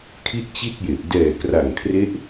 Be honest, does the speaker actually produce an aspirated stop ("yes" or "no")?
yes